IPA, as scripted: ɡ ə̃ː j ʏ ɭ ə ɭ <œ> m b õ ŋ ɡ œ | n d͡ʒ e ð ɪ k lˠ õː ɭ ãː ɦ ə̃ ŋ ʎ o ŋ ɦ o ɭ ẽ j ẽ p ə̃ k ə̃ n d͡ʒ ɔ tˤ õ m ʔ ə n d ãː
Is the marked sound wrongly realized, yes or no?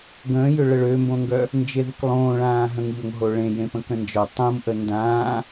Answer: yes